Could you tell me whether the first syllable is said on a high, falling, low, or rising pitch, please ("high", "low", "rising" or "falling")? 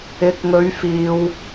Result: rising